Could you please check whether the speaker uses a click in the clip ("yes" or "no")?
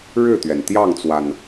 no